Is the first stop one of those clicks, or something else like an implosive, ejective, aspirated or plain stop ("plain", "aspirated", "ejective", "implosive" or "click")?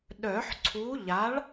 implosive